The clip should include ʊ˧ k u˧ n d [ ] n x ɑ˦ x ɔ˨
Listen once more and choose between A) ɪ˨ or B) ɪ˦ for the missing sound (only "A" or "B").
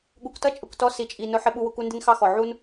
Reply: B